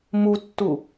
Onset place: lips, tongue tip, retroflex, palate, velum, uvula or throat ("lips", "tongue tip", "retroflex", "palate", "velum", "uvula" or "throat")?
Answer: lips